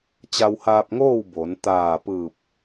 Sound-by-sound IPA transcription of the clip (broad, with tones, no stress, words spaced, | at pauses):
t͡ɕa˧whaː˧p̚ŋoː˥˨w bo˩˧n t̪aː˧˩ pɯː˧˩p̚